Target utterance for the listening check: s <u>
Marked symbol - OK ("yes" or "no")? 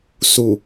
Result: yes